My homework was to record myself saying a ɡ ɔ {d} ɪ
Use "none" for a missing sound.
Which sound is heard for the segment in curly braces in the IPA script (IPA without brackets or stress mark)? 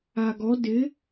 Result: d